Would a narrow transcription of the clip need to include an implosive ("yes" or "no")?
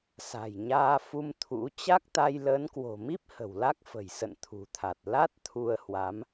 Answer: no